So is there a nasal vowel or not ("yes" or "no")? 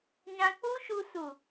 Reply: yes